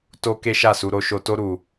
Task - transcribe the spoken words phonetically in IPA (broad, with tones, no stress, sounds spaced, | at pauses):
t o˦ k e˦ ʃ a˦˨ s u˧ ɾ o˧ ʃ o˧ t o˦ ɾ u˧